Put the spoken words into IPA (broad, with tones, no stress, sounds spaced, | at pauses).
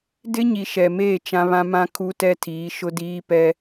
d ɪ˦ ɲ i˨ ʃ ɛ˨ m eː˦˨ t͡ʃ ã˦ β ã˦ m ã˦ kʰ u˦ t ɛ˦ tʰ iː˨˦ ʃ ʊ˦ d iː˦ p ɛ˦